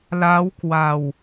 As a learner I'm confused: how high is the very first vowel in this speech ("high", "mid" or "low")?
low